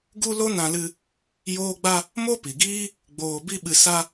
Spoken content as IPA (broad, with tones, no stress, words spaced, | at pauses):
ɡu˦lo˦nã˧lɨ˧ | joː˦ɡ͡ba˦ | mo˦pi˨ɡiː˦ | ɡ͡boː˧bi˦ ɓɨ˧sa˦